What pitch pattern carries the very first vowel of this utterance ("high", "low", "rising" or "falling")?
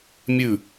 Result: falling